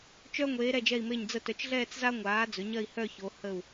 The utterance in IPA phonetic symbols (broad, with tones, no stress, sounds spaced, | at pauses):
t͡ʃ œ˥ ŋʷ eː˩˧ ɾ ɛ˧˩ d͡ʒ ɛ˧˩ i̯ m e˧˩ ɲ d͡z ə˧ t œ˩˧ t͡ʃ ɮ ɛː˥˧ t͡s z a˥ ŋʷ aː˩˧ d͡z ɵ˩˧ ɲ ɐ˥˧ i̯ h œ˥˧ ç o˩˧ h ə˧˩ u̯